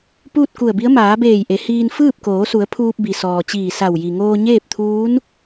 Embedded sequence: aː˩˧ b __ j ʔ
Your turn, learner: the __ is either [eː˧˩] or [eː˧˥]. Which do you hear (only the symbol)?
eː˧˩